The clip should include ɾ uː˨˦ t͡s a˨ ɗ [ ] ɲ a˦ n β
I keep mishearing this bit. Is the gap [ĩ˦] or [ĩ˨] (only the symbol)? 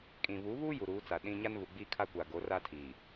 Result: ĩ˦